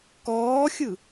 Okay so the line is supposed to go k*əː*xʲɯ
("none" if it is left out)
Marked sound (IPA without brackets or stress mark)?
ɔː